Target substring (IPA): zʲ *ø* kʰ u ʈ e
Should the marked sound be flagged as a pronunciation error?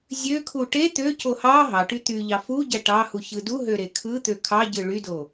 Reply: no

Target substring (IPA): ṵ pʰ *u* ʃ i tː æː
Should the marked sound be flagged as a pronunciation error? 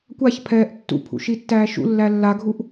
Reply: yes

